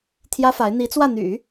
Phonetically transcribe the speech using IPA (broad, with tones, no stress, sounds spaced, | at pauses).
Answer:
t̪ʰ j ä˥ f a˧˥ ɪ̯ n̪ i˧˥ t͡s w ä˥˩ n̪ y̰˨˩˦